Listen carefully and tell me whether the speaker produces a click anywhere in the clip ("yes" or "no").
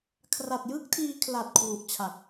no